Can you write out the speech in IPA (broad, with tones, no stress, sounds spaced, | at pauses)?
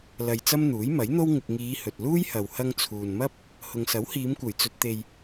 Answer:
l ɐ˨ j t͡s ɐ˥ m n̪ uː˨˥ j m ɐ˨˥ j n̪ o˥ w ŋ ɪ˨ k̚ ŋ iː˨˧ h ɵ˨ t̚ l uː˥ j h ɐ˨ w h ɐ˧ ŋ t͡sʰ uː˨ n m ɐ˥ p̚ | h ʊ˨ ŋ s ɐ˨˥ w h iː˨˧ m kʷ ɐ˨˩ j t͡s ɵ˧ t̚ t̪ e˨ j